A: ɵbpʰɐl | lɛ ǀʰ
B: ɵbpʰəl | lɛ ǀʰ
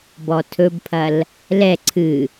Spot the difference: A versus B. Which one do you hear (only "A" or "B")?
A